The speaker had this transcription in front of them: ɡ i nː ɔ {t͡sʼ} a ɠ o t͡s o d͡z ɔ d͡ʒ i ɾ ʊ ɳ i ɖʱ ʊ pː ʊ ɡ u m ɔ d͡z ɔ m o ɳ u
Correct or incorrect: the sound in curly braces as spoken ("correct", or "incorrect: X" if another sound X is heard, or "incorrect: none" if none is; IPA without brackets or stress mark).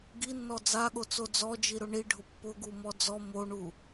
incorrect: d͡z